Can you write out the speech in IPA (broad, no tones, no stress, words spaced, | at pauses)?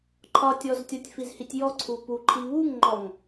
ǃʰɒtʲɔztʲɒtʲ fizhitʲjɔ ǀʰupuǃʰi βuŋŋ͡ǃɔŋ